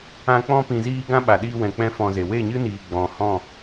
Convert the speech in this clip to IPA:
ã˧ k͡p ɔ̃˧ p ĩ˨ z iː˧ ɡ ã˦ ɓ a˨ ɗ iː˧ w ɛ̃˨ k͡p ɛ̃˦ f ɔ̃˧ z e˨ w e˦˨ ɲ ɨ˦ n iː˨ ɡ͡b ɔ̃˨ h ɔ̃˦˨

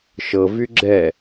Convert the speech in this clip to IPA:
ʃ ɤ v y ɡ͡ǁ ɛ

